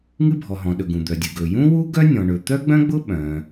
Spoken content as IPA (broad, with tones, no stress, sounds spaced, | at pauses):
ŋ ɨ˥ bʱ ɔ˩ ɦ ɔ̃˩ ɗ ɵ˩ ɡ ũ˩ d̪ œ˩ dʲ ɨ˩ ɡ ɵ˩ j ũ˥ w u˥ ɡ œ˥ nʲ ɔ̃˩ ɳ ɵ˩ t̪ œ˥ ɡ͡b œ̃˥ ɡ͡b ʊ˥ ɓ œ̃˩